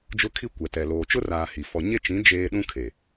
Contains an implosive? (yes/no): yes